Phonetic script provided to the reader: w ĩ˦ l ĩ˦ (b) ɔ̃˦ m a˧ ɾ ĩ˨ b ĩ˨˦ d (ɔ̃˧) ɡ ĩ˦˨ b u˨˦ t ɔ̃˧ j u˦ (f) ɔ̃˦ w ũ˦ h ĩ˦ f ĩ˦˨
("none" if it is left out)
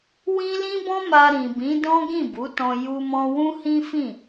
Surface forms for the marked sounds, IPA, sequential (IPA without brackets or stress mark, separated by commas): b, ɔ̃˦, m